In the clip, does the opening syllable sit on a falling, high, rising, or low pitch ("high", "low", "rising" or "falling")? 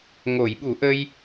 low